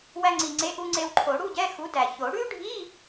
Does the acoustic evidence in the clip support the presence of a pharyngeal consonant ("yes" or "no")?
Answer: no